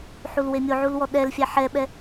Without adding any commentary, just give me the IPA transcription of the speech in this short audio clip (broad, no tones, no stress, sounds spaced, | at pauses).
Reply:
ħ u l w e mʲ o ʕ u l w ɔ ɗ ɛ l fʲ æ ħ ɛ ɓ ɛ